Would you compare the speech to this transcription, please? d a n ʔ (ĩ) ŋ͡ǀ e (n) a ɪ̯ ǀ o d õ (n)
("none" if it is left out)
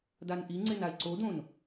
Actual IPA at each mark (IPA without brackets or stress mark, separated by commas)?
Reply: i, n, n